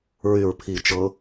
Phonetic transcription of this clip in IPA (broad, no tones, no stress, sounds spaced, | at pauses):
ɹ y ɹ pʰ i t͡ʃ ɤ